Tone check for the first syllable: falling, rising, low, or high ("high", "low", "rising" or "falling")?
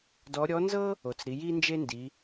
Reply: rising